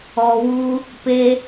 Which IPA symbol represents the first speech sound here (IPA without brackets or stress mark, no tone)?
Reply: ɔ